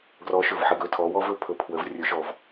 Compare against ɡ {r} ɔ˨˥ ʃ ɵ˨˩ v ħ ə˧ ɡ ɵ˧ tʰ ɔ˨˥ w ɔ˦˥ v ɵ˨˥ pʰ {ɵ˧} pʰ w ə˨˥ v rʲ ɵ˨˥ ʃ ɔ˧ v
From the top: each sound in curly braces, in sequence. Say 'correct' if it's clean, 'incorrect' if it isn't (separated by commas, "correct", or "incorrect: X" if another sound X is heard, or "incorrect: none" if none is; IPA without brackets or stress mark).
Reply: correct, correct